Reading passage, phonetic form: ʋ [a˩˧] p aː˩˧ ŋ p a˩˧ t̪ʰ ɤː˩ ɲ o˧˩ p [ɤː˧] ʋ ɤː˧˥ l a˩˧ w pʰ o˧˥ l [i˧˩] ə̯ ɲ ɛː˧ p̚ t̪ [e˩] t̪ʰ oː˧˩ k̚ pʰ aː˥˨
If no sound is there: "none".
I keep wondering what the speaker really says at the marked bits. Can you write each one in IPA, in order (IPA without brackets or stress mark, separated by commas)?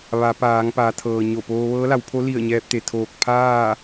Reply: a˩˧, oː˧, i˧˩, e˩